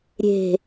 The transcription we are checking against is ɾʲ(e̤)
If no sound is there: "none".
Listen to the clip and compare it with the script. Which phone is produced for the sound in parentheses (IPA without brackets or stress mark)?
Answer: e̤